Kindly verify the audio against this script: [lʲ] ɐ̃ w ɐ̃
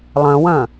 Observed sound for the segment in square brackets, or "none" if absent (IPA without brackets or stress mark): lˠ